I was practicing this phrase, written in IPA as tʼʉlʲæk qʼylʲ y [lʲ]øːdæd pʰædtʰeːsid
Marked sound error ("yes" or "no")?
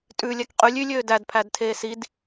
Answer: no